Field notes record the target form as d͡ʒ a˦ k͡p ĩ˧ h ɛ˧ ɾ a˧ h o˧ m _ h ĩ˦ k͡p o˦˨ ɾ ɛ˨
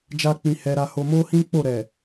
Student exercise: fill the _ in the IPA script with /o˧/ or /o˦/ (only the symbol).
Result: o˦